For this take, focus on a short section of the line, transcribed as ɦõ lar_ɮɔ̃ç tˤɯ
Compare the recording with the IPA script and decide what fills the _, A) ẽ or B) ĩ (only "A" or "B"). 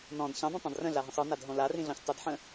B